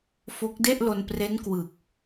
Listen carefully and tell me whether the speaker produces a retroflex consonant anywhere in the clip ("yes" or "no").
no